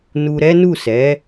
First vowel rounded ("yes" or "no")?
yes